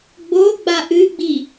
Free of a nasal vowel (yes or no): yes